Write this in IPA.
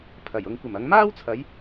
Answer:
pʰ ɐ˨˩ j ʊ˧ ŋ kʷ ɐ˨˩ m ɐ˨˧ ŋ m aː˥ w t͡sʰ ɐ˨˧ j

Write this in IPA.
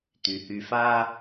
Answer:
t̪ y˩ h y˨ f a˦

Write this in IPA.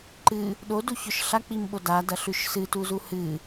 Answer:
ǃ ɨ | ɗ o d u ç ɵ ʃ ɬ a k͡p i m ɓ o d a d ɐ ɬ ʉ ʃ s ɨ t u z u h ɨ

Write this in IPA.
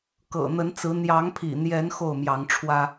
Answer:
k ɤ̰˨˩ n̪ ə˨˦ n t͡s ɹ̩˨˦ n̪ j ɑ˨˦ ŋ pʰ ḭ˨˩ n̪ j ɛ˨˦ n x o˥˨ ʊ̯ m j ɑ˨˦ ŋ ʈ͡ʂʰ w ä˦

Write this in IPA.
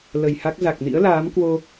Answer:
l ə˨˩ j h a˦˥ k̚ z a˨˩ k̚ n ḭ˧˥ ə̯ l aː˨˦ m k w o˧

